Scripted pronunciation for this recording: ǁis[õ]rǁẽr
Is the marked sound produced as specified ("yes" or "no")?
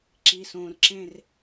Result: yes